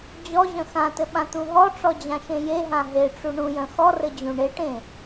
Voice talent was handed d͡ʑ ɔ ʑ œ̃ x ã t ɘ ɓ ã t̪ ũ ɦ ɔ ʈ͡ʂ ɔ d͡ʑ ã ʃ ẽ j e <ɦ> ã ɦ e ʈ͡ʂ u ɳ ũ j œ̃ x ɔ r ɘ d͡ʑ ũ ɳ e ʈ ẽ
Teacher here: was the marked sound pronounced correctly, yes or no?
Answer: yes